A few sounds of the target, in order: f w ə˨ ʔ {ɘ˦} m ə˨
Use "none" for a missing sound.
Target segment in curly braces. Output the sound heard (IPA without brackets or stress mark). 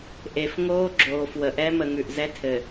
ɛ˦